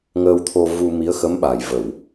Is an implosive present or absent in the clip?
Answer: present